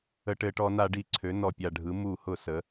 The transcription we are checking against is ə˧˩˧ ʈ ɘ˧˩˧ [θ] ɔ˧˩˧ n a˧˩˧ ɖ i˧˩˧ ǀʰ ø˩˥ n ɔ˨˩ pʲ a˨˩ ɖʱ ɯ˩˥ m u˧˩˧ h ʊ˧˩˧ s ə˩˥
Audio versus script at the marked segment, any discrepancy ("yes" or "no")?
yes